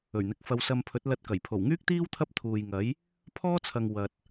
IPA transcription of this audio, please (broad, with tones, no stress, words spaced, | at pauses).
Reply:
ɵ˨˩ɥn̪ɪ˨˥k̚ fɐ˧wsɐ˧mpʰɵ˨˥t̚ lɐ˧t̚kɐ˨˩j pʰo˨˩wŋyː˥k̚t̪iː˥w t̪ʰɐ˥p̚t̪ʰuː˨jŋɐ˨˥j | pʰɔː˥t͡sʰɐ˨ŋ wɐ˨t̚